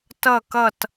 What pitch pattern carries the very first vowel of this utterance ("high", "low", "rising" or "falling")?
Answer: falling